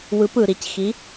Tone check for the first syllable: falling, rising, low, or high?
rising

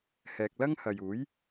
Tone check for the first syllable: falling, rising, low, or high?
low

